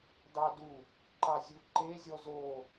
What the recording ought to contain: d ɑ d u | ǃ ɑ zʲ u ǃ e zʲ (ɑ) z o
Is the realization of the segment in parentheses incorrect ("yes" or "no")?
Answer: yes